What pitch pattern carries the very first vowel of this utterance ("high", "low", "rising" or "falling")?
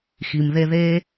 low